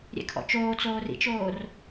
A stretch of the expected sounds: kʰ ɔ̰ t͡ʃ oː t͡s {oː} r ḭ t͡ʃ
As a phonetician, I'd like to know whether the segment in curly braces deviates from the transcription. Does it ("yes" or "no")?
no